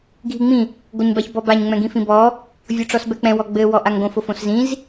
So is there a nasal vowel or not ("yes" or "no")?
yes